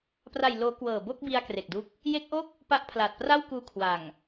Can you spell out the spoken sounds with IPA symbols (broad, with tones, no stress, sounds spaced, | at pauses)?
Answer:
p r a˨˩ j l oː˩˦ k w ɤː˨˩ b o˥˩ k̚ b i˧ a̯ k r e˨˩ k̚ d u˦˥ k̚ | j e˦˥ k̚ ʔ o˥˩ k̚ | p a˦˥ ʔ pʰ l a˨˩ t̚ p r a˥˩ w k uː˧ kʰ w a˨˩ ŋ